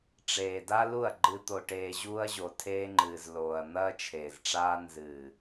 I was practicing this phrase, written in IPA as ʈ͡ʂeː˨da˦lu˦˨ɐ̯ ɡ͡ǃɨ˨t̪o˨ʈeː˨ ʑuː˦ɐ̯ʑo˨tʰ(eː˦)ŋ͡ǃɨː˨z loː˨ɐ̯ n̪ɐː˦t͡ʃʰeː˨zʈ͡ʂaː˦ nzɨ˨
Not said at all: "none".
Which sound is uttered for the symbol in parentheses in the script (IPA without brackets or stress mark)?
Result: eː˦